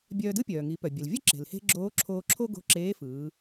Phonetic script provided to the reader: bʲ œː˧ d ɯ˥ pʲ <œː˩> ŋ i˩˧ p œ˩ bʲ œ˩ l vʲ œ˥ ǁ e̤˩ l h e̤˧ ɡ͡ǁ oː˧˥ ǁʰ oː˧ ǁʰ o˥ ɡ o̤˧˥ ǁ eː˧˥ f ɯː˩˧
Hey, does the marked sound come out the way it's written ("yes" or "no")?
yes